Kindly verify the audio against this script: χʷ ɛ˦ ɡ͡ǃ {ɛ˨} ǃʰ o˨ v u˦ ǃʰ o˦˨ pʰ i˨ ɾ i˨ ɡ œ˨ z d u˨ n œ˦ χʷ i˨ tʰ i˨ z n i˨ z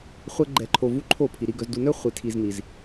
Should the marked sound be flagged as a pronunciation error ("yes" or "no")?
no